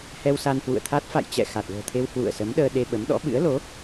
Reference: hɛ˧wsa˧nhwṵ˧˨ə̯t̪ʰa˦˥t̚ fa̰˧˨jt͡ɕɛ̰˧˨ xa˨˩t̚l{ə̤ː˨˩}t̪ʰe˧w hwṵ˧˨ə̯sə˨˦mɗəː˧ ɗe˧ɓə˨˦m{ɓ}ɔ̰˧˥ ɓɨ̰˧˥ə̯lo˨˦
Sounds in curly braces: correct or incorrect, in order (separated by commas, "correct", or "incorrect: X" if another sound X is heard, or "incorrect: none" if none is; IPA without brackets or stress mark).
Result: correct, incorrect: ɗ